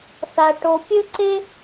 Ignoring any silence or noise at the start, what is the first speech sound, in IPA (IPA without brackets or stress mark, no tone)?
θ